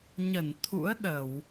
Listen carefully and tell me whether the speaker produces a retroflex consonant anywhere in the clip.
no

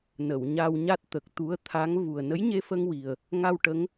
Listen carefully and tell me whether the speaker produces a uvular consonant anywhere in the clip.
no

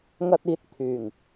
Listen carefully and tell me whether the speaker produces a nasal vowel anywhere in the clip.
no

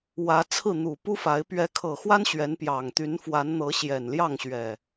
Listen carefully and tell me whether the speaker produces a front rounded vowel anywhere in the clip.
yes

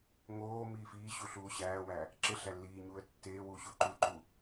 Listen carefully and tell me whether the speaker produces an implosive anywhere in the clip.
no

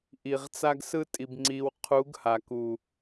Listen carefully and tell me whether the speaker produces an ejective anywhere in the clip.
yes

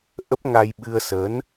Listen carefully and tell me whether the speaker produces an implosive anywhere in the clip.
yes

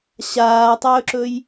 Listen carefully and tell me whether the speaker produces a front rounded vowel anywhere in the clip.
no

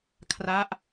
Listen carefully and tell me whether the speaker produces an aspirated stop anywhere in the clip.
yes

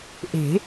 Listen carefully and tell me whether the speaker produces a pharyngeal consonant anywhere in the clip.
no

